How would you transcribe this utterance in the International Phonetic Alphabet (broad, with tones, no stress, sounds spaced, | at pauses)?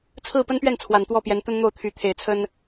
t͡sʰ ɹ̩˥˨ p ə˦ n p ɥ ɛ˥˨ n t͡sʰ w a˨˩ n t̪ w ɔ˥˨ p j ɛ˨˦ n t̪ ə˦ n n̪ o˥˨ ʊ̯ t̪ʰ y˨˦ t̪ʰ e˨˩ ɪ̯ t͡sʰ ə˦ n